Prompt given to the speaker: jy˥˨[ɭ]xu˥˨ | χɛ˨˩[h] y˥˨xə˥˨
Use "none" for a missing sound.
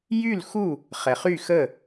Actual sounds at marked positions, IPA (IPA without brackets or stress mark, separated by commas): l, χ